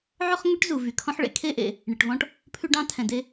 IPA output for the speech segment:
ʕ ɵ˥ χ ŋ ø˥ ʈ z u˩ v y˩ kʰ ɔ̃˥ ħ ɭ ḛ˥ kʰ e˥ ʔ ḛ˩ | ɳ e˩ ʈ v ɔ̃˥ ʈ | pʰ ʉ˥ ɖ ɑ̃˥ tʰ ɛ̃˩ d e˥

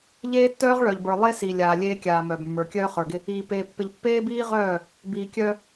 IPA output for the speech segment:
ʎ eː˦ tː œː˦ ʁ ɭ œ˨ ʎ b ə˞˨ lˠ e˦ s i˨ lʲ aː˨ lʲ eː˦ kʲ aː˨ m œː˨ b mː ə˞˨ kʲ œː˦ χ ə˞˨ ɡ ɪ˦ | iː˨ p eː˨ pː ɪ˨ ʎ pː eː˦ b iː˦ ʁ œː˦˨ | b iː˨ kʲ œ˦

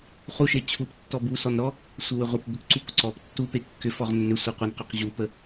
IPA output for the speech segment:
χ u ʃ e t͡ɕʰ u p tː ɔ b u s ɔ n ɾ ɔ | sʷ e w ʏ ʁʷ e p b ʏ k ǀ u k ǀ ɔ p tː u p e kː ʏ f ɔ ʁ nː ʏ sʷ e qʷ e n q ʏ q ʑ u p ə

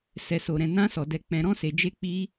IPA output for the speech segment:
s ɛ˨ s o˨ ɾ ɛ̃˨ n ã˧ s ɔ˨ d ɛ˨ k͡p ɛ̃˨ ɾ ɔ̃˧ s e˨ d͡ʒ e˧ k͡p i˧

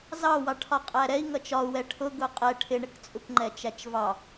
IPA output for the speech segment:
z ɑ w ɑ ʈʰ ɒ qʼ æ ɾ ɛ i̯ ŋ ʌ t͡ʃ ɒ u̯ w ɛ ʈʰ ʊ ɡ ʊ qʼ ɛ ʈʰ ɪ ɳ ɪ k t͡sʼ u k ŋ͡ǃ ɛ t͡ʃ æ t͡ʃ v ɑ

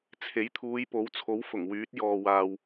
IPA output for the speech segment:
t͡sʰ e˨˥ j t̪ʰ uː˨˧ j p o˨˥ w t͡sʰ o˨˥ w f ʊ˨˩ ŋ w yː˨˥ t̚ j ɔː˨ w aː˨ w

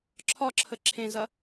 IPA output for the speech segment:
ǁʰ ɒ ǁʰ ə ǁʰ ẽ z ɐ

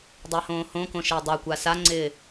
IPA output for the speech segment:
dˤ e h õː h õ k õ ʃ ɪː dˤ a kʷ a s a ŋ͡ǀ ɪː

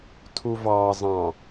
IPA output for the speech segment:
tʰ u v ɑ zˤ ɑ̃

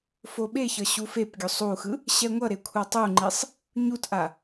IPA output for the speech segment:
f o ɓ e ç ʌ ɕ u f e p ɡʲ o sˤ u x ɯ | ɕ ɛ ŋʷ ʌ ɾ e kʷʰ a tˤ u ŋ͡ǃ i sˤ | ɲ u t ʔ a

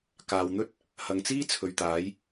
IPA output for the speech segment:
k aː˨ w n̪ ɵ˥ t̚ | h ɐ˨ ŋ t͡s iː˥ t͡sʰ ɵ˨˧ ɥ t̪ aː˨˥ j

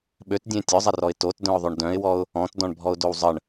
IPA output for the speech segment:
ɓ ø t dʲ ẽ tʲ œ zˤ ɛ r ɔ ɪ̯ t o t d œ̃ ʊ̯ ðˤ ø ɳ d œ̃ ɪ̯ w ɔ ʊ̯ | ɔ̃ t d ɔ̃ ɳ bʱ ɔ ʊ̯ d o w zˤ ə ɳ

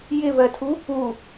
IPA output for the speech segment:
j ɪ v ɜ tʰ u | u

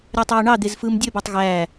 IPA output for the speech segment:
ɾʲ æ tˤ øː ɳ ɑ d̪ e z f ɯː m dʲ ø b ɑ tˤ ɣ æː

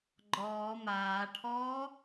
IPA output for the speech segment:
ɡ͡ǃ ɔː m aː ʈʰ ɔː

